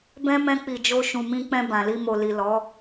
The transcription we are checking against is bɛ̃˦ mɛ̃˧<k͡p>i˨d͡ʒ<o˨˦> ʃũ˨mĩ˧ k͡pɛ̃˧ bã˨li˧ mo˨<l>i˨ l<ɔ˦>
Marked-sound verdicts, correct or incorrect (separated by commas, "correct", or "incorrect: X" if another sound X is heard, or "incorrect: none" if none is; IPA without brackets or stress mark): correct, incorrect: o˧, correct, incorrect: ɔ˨˦